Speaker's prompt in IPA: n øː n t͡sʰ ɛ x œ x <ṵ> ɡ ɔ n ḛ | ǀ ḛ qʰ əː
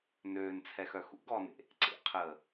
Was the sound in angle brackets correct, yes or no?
yes